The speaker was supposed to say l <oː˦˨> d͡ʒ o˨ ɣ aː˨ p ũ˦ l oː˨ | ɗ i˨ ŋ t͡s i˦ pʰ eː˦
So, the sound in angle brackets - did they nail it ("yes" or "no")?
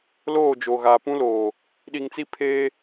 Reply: yes